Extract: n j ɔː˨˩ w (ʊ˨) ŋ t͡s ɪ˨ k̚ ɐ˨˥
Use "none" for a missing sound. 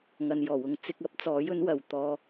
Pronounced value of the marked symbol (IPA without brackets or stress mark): ʊ˨